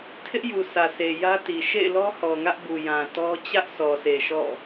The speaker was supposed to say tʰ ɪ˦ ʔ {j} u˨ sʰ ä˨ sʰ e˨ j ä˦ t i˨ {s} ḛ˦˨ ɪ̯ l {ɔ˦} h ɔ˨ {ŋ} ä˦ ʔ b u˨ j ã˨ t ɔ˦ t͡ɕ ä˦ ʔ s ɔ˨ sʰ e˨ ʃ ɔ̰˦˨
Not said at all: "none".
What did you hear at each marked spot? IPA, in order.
j, ʃ, ɔ˦, ŋ

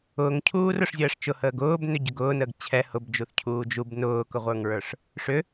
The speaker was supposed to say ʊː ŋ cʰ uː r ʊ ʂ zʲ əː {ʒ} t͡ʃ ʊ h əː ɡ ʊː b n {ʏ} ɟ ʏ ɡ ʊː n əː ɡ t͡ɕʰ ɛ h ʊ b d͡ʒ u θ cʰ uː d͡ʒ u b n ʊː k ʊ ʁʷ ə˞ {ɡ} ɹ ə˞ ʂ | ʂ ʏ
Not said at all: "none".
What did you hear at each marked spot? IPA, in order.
ʂ, ʏ, ŋ

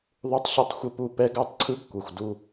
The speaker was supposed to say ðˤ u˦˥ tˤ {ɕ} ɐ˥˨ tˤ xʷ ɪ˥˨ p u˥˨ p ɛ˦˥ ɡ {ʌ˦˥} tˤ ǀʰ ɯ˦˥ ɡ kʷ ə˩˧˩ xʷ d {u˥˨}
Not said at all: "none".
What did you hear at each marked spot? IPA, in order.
ɕ, a˦˥, u˥˨

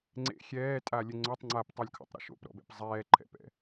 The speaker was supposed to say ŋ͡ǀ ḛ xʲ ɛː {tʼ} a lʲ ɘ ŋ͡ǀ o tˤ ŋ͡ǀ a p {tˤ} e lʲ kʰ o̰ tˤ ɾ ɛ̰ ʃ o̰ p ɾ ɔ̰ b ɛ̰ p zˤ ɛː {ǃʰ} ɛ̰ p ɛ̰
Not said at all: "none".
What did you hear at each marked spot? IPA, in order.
tʼ, tˤ, ǃʰ

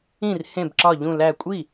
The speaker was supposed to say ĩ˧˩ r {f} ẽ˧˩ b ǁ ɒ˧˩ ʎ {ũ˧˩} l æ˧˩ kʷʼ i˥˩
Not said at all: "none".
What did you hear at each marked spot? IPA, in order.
h, ũ˧˩

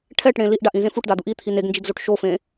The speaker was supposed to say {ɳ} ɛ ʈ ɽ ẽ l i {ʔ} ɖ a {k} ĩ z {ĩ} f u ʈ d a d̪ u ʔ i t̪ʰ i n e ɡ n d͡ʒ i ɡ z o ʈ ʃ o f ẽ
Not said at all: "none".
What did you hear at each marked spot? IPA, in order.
ʈʰ, ʔ, ʔ, ẽ

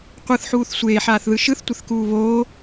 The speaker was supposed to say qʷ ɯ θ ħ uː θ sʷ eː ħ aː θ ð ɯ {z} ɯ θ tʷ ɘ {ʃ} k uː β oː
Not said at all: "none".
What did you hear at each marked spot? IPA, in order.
ʃ, θ

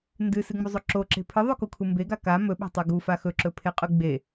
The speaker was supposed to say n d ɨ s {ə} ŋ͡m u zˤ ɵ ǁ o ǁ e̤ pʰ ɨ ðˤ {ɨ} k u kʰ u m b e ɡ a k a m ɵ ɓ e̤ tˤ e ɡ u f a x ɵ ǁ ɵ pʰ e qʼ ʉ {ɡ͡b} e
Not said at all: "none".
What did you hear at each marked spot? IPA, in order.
ɨ, ʉ, ɡ͡b

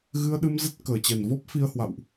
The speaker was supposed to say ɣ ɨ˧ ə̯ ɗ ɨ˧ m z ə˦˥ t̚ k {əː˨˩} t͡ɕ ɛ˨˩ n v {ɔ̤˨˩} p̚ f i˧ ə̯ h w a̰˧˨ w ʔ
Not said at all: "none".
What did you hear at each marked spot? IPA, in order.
əː˨˩, ɔ˦˥

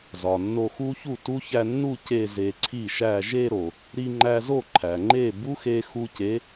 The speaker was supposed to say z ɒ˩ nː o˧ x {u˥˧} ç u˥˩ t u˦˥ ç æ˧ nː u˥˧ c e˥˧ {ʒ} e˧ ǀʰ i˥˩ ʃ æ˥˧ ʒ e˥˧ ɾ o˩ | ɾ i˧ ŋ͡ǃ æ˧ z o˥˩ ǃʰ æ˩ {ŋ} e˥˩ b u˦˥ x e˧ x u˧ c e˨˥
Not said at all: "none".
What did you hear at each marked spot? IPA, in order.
u˦˥, z, ŋ͡ǃ

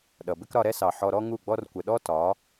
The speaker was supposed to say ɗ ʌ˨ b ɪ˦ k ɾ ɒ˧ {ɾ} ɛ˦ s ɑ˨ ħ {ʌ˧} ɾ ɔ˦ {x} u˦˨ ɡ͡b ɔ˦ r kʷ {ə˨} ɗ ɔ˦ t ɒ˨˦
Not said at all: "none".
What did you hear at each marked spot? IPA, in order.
ɾ, ɔ˧, ŋ, ə˨

